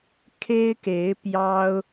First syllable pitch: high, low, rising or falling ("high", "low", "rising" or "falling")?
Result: high